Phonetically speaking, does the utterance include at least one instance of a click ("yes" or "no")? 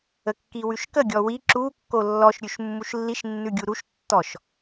yes